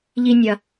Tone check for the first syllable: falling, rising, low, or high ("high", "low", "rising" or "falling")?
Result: high